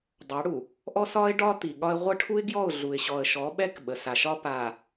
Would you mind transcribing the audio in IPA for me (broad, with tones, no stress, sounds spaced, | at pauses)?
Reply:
dˤ ɑ˨˦ ɽ u˨ | ʔ ɔ˦ s ɒ˦ ɪ̯ ɖ ɒ˦ t̪ i˨ ɠ ɒ˦ ɪ̯ ʁʷ ə˦ ʈʰ u˦ ɪ̯ ɡ j ɔ˦˨ ʊ̯ ɮ u˨ ɪ̯ ɕ ɔ˨ ə̯ ʃ ɔ˨˦ ɓ ɛ˦ k ɓ ə˨ s a˨ ʃ ɒ˦ p a˨